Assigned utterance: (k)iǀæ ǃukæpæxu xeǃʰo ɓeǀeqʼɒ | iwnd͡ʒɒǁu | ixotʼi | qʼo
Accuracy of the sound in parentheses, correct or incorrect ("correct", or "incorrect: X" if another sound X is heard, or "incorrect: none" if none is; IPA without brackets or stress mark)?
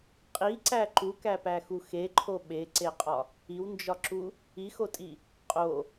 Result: incorrect: qʼ